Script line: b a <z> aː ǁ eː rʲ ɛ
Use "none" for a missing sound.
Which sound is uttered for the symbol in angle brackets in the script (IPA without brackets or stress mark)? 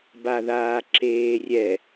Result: ð